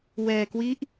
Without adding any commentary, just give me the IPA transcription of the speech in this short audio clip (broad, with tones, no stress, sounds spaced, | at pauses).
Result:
w ɛː˧ k w i˦˥ ʔ